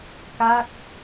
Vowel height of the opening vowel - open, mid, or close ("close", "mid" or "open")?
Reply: open